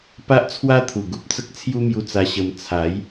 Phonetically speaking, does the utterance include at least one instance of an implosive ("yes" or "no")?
no